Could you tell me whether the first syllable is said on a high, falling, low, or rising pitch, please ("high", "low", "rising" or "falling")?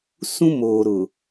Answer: high